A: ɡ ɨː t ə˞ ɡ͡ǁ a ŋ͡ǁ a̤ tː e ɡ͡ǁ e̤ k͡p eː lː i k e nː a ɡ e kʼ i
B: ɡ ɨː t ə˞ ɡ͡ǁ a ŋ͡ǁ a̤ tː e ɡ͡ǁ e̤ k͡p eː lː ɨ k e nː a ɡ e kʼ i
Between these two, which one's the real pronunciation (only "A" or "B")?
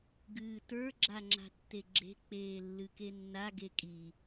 B